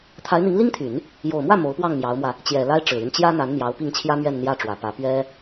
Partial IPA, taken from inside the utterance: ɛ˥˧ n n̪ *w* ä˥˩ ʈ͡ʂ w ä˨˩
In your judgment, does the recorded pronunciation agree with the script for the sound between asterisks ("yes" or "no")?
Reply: no